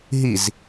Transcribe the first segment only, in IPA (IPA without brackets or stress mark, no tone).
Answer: ɦ